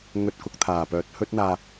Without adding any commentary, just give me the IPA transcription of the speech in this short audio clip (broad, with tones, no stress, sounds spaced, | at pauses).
ŋ ɵ˧ t̚ k ʊ˧ k̚ t̪ʰ aː˨˩ p œː˨˥ t̚ h ɵ˥ t̚ n̪ aː˧